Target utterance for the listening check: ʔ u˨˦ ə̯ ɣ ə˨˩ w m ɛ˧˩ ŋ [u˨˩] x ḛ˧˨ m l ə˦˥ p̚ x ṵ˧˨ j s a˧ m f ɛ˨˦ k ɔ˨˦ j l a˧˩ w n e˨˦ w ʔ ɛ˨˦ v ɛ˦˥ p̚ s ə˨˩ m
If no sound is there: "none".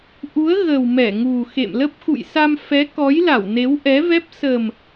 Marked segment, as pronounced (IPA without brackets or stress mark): u˨˩